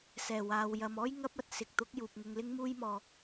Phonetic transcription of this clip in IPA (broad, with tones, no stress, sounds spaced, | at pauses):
s ɛː˨˩ w aː˨ w j ɐ˨ m ɔː˥ j ŋ ɐ˥ p̚ ɐ˧ t̚ s ɪ˨ k̚ t̪ ʊ˨˥ k̚ j uː˨ p̚ ŋ ʊ˧ ŋ l ɪ˥ ŋ m uː˥ j m ɔː˧